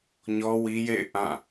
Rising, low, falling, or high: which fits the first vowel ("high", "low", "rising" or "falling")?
high